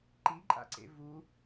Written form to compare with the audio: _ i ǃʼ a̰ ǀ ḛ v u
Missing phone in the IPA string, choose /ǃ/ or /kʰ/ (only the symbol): ǃ